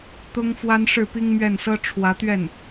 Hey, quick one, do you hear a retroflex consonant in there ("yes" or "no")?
yes